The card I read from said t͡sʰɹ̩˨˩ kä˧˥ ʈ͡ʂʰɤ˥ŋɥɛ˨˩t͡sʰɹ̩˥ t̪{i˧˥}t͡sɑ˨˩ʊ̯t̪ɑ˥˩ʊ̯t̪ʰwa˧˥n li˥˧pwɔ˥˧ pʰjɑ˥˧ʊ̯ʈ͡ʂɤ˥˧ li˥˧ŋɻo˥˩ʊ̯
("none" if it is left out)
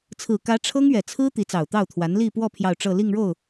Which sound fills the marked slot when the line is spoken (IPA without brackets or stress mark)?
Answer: i˧˥